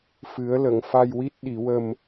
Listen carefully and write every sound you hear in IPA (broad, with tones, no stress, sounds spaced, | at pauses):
f ɨ˨˩˦ ə̯ l ə˨˩˨ ŋ f a˧ j w i˦˥ t̚ ɗ i˨˩˦ w ə˧ m